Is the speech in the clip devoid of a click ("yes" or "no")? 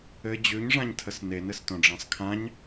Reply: yes